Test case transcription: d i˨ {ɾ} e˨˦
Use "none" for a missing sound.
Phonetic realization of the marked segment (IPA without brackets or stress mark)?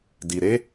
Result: ɾ